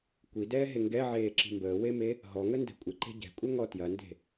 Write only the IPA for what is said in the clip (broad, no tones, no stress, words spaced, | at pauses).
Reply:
kʷidɛːɦe ŋɡɛʕeːǁi̤ mbəːweme | ɦɔŋəndɛ̤ kʷʼɪǃe̤ ɟɛ̤kʷʼɛŋɔ tjɐnde̤